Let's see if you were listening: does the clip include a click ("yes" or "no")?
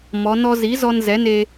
no